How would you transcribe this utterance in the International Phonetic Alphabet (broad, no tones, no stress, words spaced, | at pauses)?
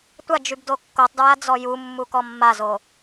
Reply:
tʷad͡ʒyb dokːotˤdɹa d͡zɔjumːu kɔmːazo